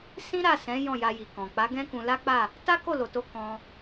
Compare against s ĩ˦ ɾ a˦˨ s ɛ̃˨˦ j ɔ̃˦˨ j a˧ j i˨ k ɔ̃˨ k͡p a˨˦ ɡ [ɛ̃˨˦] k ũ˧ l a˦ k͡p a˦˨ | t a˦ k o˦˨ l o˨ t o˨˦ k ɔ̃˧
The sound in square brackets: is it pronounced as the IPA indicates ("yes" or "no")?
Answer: no